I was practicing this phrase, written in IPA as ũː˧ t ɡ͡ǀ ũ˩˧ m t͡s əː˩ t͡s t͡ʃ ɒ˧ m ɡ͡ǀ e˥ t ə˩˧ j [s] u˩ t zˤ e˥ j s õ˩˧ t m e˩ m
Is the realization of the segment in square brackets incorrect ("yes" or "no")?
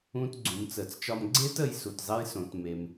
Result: no